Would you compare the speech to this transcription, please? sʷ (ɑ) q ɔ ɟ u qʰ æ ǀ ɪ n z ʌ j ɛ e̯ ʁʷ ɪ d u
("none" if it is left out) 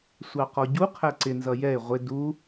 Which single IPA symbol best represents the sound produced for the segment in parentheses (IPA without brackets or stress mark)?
ɑ